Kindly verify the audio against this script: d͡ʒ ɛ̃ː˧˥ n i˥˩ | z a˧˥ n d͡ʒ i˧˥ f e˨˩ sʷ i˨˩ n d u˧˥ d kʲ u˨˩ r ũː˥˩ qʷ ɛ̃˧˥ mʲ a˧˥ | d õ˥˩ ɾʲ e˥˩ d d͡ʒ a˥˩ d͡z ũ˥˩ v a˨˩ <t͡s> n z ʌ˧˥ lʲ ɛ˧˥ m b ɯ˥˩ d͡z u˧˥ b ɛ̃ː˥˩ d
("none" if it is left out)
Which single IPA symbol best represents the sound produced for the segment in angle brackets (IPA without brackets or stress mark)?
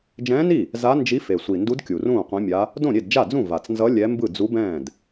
t͡s